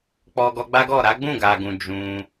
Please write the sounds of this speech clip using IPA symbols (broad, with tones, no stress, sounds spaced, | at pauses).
k͡p ɔ˧ ɡ ɔ˧ ɡ͡b a˦ ɡ ɔ˦˨ ɾ a˨˦ ɡ͡b ũ˦˨ ɡ a˨ ɡ ũ˨ d͡ʒ ũ˧